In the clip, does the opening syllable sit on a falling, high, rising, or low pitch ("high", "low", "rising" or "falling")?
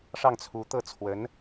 falling